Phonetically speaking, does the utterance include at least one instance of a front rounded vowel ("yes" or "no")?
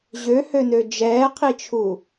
yes